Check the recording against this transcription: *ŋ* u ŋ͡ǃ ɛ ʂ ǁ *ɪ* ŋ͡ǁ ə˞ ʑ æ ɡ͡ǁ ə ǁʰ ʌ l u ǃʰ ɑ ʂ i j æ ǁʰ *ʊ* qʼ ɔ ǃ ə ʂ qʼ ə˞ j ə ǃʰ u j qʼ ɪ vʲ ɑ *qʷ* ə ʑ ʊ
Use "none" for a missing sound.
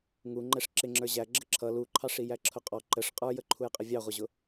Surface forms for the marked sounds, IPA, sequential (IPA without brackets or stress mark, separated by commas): ŋ, ɪ, ʊ, ʁʷ